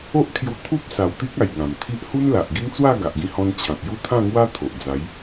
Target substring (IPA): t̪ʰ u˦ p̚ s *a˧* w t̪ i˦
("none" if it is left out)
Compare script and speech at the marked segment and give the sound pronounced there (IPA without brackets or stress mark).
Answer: a˨˩